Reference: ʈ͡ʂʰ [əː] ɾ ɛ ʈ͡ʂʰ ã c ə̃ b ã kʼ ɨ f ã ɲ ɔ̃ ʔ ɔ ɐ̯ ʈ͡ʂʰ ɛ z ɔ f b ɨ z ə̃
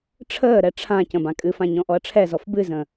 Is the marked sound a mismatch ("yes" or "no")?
no